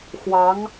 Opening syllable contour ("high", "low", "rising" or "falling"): rising